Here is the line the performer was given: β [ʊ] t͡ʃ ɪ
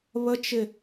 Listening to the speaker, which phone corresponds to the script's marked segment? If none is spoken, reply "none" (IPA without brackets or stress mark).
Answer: ə